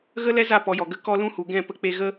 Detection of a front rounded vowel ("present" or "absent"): absent